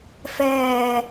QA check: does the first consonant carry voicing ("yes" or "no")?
no